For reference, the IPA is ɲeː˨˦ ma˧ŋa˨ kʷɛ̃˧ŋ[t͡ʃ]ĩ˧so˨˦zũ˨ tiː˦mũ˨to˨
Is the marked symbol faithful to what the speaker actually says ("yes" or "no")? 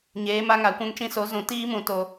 yes